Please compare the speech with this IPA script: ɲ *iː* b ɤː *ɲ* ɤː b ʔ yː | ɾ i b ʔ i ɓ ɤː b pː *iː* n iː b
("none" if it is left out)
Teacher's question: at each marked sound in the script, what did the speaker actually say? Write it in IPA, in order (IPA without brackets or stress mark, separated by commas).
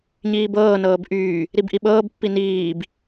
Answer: iː, n, i